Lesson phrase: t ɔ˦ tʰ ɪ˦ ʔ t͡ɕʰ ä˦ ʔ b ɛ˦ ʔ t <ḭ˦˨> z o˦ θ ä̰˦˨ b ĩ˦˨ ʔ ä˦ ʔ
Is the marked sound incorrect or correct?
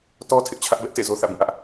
incorrect